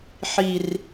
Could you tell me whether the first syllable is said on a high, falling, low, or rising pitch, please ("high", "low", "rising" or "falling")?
low